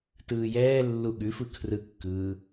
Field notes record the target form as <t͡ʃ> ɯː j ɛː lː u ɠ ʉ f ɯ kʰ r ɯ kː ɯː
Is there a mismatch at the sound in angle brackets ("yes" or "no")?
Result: yes